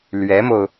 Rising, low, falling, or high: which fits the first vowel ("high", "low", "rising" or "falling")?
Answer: rising